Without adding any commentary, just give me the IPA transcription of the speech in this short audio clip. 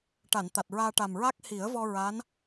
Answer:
ʈa˨˩˨nt̪a˨˩t̚ɹaː˧ʈa˨˩m ɹa˦˥k̚hi˨˩˦ə̯vɔ˧ ɹa˧˥n

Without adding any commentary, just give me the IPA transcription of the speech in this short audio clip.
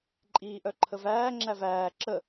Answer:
ǃʼiːʔœǃʰəvæː ŋ͡ǁævæː ǁə

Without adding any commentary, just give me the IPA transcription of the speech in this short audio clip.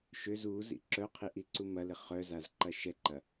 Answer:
ʃøz uzḭ ǁœqʰiʔiǀu mɐlɪ χœzazǃɐ ʃɛǃɐ

